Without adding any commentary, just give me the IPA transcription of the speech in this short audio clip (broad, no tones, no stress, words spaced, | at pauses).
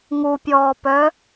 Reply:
ŋupʲɔːpœ